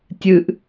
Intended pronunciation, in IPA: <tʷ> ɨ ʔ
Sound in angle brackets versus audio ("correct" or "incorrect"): incorrect